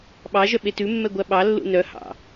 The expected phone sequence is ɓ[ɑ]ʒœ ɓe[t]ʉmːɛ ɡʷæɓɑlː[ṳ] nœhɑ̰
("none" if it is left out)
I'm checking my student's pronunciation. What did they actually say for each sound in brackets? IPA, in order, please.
ɑ, t, ṵ

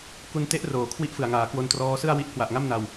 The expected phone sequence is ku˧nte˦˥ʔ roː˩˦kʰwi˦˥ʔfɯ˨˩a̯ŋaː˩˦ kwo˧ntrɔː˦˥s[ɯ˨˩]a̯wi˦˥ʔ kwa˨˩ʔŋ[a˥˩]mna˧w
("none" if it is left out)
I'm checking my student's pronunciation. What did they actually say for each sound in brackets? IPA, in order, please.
ɯ˥˩, a˥˩

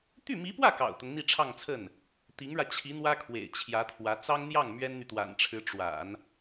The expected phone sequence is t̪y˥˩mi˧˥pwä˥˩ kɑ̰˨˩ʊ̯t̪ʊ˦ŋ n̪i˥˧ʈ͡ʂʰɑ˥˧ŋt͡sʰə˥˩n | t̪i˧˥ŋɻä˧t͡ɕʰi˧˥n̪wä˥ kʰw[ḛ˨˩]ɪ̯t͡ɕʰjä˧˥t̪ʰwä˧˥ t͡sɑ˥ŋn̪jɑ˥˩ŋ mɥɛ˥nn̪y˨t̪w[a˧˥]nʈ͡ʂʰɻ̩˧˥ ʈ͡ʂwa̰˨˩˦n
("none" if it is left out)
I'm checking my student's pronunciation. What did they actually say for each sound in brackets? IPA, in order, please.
ḛ˨˩, a̰˨˩

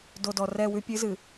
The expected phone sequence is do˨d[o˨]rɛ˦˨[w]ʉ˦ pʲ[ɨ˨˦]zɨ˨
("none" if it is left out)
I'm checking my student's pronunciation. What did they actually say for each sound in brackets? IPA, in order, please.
ɔ˨, w, ɨ˨˦

